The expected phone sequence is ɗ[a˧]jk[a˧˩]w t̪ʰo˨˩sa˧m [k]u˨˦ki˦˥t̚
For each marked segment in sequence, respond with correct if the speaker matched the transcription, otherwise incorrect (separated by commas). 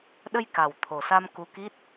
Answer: incorrect, incorrect, correct